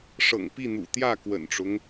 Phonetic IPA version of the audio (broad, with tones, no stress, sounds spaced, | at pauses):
ʂ ɤ̰˨˩ ŋ p i˥˨ n̪ ṵ˨˩ t̪ j ä˥˨ k w ə̰˨˩ n ʈ͡ʂ ʊ˦ ŋ